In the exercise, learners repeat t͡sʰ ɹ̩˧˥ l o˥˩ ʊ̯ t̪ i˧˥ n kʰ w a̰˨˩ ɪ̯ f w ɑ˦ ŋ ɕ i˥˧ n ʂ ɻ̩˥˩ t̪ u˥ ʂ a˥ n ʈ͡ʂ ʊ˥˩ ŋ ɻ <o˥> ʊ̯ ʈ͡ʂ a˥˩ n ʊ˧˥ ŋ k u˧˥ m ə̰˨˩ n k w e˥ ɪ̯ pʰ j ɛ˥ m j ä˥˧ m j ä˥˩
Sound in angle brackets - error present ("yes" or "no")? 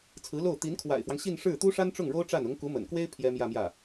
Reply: no